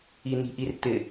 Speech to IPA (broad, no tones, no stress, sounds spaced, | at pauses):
i n̪ i̤ ʔ i r t̪ ɪ